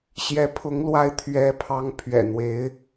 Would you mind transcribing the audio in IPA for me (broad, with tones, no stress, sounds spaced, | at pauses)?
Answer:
ɕ j ɛ˧˥ pʰ ʊ˧˥ ŋ l w a˧˥ ɪ̯ t̪ʰ ɥ ɛ˧˥ pʰ ɑ˧˥ ŋ pʰ ɥ ɛ̰˨˩ n̪ w e˧˥ ɪ̯